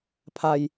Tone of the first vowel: low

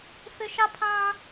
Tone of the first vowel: high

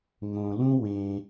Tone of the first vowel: low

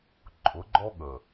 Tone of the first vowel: rising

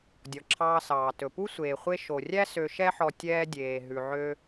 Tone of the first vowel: low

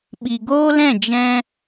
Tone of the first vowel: low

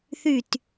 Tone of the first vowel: falling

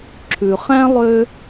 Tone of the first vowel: low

